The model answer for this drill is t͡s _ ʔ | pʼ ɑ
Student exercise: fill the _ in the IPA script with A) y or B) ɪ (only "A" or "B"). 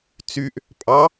A